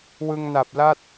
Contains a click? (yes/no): no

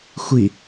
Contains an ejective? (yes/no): no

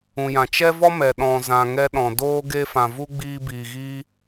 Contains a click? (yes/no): no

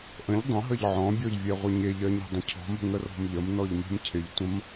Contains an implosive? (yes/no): no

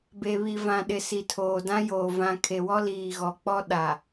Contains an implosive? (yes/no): yes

